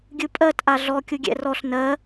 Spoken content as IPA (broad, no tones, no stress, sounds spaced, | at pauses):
ɡʲ ɯ pʼ ɜ t ʔ a ɮ ɔ kʲ u ɡʲ ɛ̰ r ɔ ɬ n ɜ